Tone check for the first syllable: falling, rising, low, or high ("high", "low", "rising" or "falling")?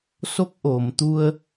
rising